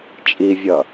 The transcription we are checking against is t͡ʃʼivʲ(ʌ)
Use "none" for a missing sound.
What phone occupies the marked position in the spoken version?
ʌ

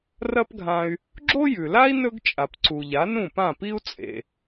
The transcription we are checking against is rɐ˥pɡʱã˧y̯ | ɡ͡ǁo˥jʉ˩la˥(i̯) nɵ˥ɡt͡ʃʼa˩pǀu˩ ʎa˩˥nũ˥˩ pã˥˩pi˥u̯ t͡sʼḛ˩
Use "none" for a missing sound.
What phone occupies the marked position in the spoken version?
i̯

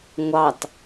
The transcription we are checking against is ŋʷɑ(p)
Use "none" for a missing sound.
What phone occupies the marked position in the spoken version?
t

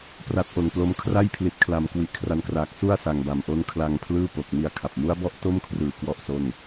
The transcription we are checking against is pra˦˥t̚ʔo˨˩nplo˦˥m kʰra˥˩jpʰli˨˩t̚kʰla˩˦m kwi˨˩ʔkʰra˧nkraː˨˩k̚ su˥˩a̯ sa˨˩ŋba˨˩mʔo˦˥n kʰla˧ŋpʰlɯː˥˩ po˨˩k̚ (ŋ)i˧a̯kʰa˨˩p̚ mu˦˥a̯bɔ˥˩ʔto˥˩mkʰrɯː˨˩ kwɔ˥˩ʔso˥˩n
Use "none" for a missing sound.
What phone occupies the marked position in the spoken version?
m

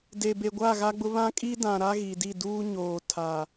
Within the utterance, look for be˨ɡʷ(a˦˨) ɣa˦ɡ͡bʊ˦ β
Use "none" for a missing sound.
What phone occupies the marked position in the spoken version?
a˦˨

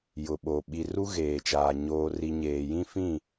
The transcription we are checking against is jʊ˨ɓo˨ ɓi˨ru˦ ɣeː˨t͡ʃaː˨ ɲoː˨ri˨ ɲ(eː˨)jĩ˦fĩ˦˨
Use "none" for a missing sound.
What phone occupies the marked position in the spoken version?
eː˨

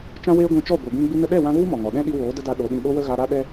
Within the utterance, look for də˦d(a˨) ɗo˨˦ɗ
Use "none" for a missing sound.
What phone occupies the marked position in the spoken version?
a˧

